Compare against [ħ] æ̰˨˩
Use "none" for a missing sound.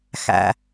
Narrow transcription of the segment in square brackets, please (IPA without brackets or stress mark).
x